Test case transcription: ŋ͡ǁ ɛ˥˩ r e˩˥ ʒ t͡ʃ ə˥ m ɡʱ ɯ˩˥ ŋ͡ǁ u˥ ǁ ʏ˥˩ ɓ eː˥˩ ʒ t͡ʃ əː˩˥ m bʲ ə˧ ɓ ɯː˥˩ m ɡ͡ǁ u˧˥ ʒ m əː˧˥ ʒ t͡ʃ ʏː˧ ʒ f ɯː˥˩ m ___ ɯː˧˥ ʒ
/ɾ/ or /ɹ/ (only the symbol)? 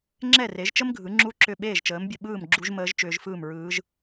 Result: ɹ